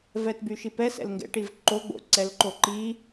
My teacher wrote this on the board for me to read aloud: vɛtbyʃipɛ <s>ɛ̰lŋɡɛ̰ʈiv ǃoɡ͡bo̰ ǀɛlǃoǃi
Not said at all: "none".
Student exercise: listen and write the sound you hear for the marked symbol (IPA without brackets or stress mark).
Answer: s